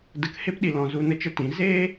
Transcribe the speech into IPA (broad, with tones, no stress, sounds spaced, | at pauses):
d ə˧ k h e˧ p ɗ i˨ l ɔ̃˨ z u˧ n ə˦ t͡ʃ ə˦ t ĩ˨˦ z eː˦